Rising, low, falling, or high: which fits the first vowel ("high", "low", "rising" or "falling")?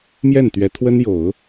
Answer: falling